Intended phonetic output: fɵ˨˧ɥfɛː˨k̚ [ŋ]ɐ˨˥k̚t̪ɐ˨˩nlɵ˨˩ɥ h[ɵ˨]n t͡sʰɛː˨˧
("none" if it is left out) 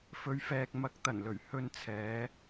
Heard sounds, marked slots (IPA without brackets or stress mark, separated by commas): m, ɵ˧